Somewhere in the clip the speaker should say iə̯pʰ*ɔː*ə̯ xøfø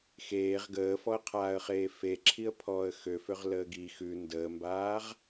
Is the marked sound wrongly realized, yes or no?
no